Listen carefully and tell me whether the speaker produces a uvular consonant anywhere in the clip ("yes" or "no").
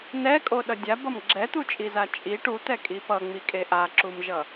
no